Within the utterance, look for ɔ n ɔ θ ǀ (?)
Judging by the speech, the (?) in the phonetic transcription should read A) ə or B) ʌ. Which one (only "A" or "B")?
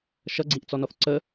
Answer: A